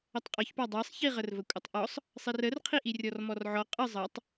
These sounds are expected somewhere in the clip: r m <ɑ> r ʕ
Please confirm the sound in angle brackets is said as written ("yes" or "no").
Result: no